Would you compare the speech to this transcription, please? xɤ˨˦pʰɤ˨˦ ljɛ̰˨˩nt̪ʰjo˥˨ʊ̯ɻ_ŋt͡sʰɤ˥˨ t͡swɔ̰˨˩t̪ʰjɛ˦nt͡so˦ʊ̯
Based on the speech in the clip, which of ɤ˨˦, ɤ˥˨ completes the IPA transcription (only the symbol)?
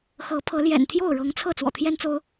ɤ˨˦